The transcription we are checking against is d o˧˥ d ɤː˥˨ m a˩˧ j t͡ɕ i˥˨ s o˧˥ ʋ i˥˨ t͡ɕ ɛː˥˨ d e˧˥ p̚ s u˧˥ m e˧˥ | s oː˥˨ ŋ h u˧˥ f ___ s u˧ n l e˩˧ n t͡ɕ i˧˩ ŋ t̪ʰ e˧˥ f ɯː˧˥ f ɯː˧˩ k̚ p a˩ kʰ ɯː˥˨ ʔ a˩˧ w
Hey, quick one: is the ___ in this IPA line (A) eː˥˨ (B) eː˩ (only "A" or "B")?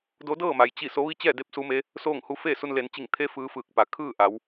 A